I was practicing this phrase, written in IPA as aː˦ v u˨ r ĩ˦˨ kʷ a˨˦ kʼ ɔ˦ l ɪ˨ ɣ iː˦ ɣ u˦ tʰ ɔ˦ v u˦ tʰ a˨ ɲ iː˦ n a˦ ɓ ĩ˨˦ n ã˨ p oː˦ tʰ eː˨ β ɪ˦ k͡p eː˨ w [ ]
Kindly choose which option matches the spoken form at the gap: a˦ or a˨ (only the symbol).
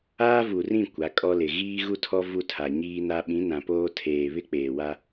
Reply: a˦